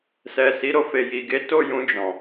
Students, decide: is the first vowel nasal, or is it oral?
oral